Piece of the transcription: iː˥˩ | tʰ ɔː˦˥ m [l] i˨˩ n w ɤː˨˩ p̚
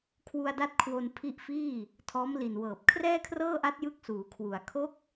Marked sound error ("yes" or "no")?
no